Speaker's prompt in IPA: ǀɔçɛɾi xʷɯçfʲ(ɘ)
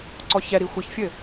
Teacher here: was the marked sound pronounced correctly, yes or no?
yes